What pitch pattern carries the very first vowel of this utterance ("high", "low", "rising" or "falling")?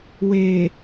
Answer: low